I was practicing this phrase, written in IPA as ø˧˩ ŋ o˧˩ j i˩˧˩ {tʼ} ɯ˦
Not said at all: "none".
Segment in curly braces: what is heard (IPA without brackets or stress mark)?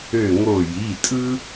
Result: tʼ